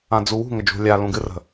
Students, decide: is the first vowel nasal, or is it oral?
nasal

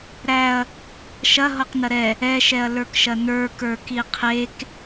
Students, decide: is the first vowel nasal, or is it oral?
oral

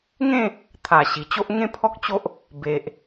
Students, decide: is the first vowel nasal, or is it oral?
nasal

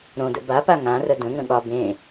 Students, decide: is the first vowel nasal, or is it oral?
nasal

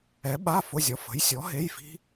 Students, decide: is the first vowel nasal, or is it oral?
oral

